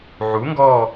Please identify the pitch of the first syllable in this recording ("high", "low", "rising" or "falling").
rising